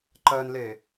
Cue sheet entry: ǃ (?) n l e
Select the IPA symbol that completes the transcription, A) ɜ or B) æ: A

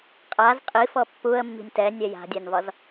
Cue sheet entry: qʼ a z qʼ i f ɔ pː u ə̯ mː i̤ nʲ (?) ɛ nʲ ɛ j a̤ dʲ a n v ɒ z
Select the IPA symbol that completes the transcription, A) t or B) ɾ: A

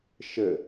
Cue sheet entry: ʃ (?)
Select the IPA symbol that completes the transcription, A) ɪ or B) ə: B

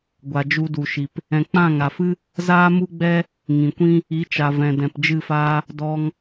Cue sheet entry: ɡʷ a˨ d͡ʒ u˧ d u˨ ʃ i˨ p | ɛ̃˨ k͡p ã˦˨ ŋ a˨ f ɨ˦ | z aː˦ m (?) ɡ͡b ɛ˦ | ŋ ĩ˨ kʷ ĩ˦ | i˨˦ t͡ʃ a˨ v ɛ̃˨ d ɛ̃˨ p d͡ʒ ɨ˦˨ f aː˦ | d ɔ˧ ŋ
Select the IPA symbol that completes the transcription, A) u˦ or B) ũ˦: A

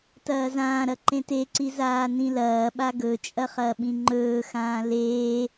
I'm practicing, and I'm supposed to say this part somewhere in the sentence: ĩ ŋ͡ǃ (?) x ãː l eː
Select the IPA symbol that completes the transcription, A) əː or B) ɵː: B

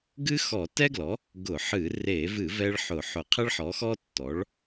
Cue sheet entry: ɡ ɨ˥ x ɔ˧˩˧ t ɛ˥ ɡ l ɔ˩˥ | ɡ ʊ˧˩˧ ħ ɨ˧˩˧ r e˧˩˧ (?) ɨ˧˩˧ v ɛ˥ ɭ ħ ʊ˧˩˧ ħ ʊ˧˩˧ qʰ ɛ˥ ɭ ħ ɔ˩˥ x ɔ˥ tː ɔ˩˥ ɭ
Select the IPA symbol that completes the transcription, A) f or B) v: B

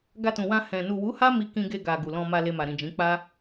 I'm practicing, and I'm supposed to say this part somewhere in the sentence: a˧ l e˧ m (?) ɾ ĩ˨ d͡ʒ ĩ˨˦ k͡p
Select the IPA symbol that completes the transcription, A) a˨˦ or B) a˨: B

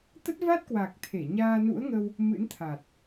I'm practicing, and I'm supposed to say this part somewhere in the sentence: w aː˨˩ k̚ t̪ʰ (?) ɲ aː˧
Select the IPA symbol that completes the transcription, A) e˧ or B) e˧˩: B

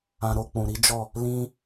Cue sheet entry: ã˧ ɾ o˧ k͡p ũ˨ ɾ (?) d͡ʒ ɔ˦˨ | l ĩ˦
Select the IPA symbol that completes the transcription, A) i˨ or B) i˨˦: B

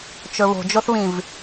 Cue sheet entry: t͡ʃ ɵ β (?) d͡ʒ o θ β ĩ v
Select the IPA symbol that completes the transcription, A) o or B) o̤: B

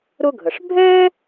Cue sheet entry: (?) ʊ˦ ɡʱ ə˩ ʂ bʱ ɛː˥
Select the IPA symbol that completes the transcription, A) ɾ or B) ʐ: A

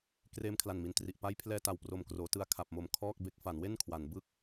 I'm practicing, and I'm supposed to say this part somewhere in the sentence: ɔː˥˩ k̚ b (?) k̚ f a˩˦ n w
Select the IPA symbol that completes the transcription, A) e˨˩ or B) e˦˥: B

